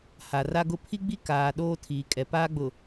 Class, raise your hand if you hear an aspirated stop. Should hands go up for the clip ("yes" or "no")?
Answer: yes